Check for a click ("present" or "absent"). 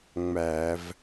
absent